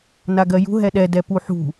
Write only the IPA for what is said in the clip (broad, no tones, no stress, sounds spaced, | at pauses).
n a ɡ ɜ j ṳ ɦ ɛ ɗ ɛ d ɛ p u ħ ṳ